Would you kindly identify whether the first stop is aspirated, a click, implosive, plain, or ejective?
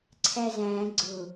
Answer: click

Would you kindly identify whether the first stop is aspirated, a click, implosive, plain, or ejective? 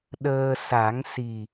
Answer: implosive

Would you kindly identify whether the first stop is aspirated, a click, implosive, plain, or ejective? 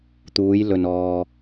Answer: plain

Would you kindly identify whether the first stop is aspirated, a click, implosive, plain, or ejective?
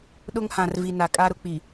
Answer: implosive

